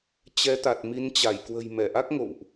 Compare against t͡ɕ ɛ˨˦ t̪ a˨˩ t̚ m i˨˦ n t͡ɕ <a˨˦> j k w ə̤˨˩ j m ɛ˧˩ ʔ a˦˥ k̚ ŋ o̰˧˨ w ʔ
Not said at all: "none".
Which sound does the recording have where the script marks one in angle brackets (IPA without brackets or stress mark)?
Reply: a˧˩